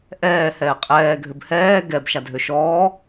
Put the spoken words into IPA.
ʔɛː hɛːqʼɛː ɡʱøbhɛː ɡɛb ʃadʱøʃɔː

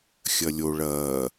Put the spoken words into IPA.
xʲɐlʲo ɭɐː

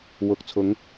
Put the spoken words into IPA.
wʊ˨k̚t͡sʰʊ˨˧ŋ

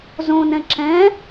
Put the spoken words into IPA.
zõnɛ̃ ǁɛ̃

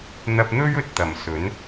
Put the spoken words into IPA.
n̪ɐ˧p̚n̪ɵ˥ɥɵ˨t̚t̪ɐ˨˩m sɵ˨˥n

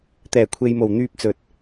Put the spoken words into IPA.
t̪ɛː˨˩kʷʰe˨jmo˨˩w n̪yː˧p̚t͡sɵ˨t̚

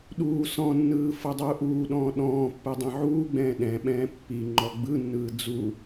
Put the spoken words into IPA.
ɗuː sɔ̃nːɯː fɤdˤuːʔuːɗɔ̃ː ɗɔ̃ːpːɯ dˤĩʕuːɡ͡bɛ̃ː ɗɛ̃ɓɛ̃ː pːi ŋ͡ǃɔɡ͡bɯnːɯː d͡zu

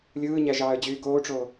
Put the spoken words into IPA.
lʲɯːɲæ ʒɑːə̯d͡ʑyːɡoːʈ͡ʂoː

